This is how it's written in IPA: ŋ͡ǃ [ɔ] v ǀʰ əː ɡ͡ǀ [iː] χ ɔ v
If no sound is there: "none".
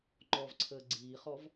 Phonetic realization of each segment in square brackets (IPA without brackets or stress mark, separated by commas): ɔ, iː